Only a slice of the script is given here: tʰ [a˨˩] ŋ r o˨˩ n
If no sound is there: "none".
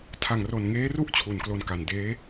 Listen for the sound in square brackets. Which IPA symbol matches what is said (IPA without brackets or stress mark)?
a˨˩